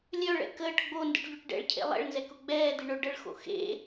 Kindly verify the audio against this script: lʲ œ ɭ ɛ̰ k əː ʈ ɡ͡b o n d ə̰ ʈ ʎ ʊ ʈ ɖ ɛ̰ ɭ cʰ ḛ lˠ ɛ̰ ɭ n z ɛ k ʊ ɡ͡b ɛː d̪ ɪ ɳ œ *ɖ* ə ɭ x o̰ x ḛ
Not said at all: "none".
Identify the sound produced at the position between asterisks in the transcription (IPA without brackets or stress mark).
ɖ